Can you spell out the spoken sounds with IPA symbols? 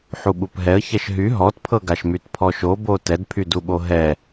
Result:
ħuɓupɦɛə̯ çɛʃɦy ɦɔtpʰɤɡaʃmyt pʰɔʃobo tɛdpʰyduɓo ɦɛ

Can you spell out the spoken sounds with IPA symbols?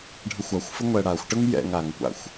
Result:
ɖʱəxʷaxʷfə ŋʷɛɽaxʷʈəŋ jɛ̰ŋ aŋkʷa̰xʷ

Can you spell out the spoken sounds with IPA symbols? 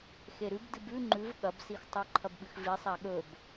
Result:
xeɾʉbdɨb ʉ ŋ͡ǃʉv ɠɐbsixtˤʉ ǃʰɐbɓɨxvi sˤaɠɵb

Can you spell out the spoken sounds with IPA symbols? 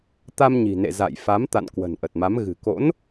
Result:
t̪a˧mɲi̤˨˩nḛ˧˨ za̰˧˨j fa˨˦m t̪a̰˧˨n kwə̤˨˩nʔə˨˩t̚ma˨˦m ɣɨ̤˨˩ko̰˧˥n

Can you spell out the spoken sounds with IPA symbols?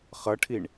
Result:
χʌʈʰiɳ

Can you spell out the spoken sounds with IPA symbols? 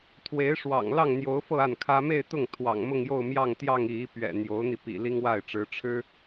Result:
t̪ʰwe˧˥ɪ̯ʂwɑ̰˨˩ŋ lɑ˥˩ŋn̪jo˧˥ʊ̯fɤ˥˧ a˥˩nkʰä˥ me˥˧ɪ̯t̪ʊ˥˩ŋ t̪ʰwɑ̰˨˩ŋmʊ˥˧ŋjo˥˧ʊ̯ mjɑ˥˧ŋt̪jɑ˥˧ŋ i˥˩i˥ pɥɛ̰˨˩ n̪jo˧˥ʊ̯n̪i˧ pḭ˨˩li˥ŋwa˥˩ɪ̯ʈ͡ʂɻ̩˧˥ ʈ͡ʂʰɻ̩˥

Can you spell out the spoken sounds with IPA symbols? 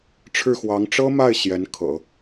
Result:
ʈ͡ʂʰɻ̩˥˩xwɑ˧˥ŋ ʈ͡ʂɤ˥ma˥˩ɪ̯ ɕjɛ˧˥nkʰɤ̰˨˩˦

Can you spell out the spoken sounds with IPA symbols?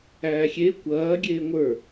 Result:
æːxʲe kʷɐː ɡʲeːŋʷə˞

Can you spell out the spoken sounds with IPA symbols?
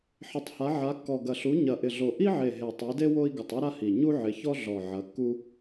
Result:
ħɪ˨˦tˤha˨˦ ʕa˨˦kːɔ˨˩ ɡɐ˨˩ɬu˨˦ ɲɐ˨˩ʔɪ˨˩ɮo˨˩ ʔi˥ʕe˨˩ ɦe˨˩tˤe˨˦de˥ wo˥i̯ ɡɪ˨˩tˤu˥ɾa˥ hi˨˩ ɲu˥ʕɪ˨˦çɔ˥ ɮɔ˨˩ ʕɐ˨˦kːu˥

